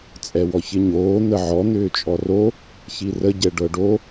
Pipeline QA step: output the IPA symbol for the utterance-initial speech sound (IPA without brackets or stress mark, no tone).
t͡sʼ